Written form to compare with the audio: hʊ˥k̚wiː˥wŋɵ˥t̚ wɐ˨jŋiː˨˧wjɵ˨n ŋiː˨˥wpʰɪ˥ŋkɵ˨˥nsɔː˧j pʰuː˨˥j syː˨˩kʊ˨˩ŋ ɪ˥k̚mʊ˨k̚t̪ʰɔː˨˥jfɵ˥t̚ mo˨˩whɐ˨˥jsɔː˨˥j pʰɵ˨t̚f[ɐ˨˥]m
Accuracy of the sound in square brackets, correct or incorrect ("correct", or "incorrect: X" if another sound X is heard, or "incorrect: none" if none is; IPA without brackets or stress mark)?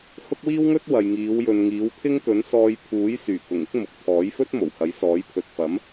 correct